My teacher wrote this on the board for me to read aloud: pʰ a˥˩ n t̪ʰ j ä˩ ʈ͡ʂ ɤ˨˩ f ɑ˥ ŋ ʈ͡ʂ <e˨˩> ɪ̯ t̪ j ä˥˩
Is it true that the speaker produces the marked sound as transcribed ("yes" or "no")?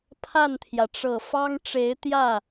no